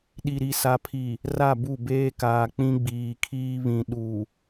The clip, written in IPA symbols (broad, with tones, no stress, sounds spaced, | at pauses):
ɗ i˨ ɾ i˨ s a˨ pʰ i˨ | r a˦˨ b u˦˨ b eː˦ k aː˨ k͡p ĩ˦ ɡ͡b iː˨ kʰ iː˦ β ĩ˨ ɗ u˨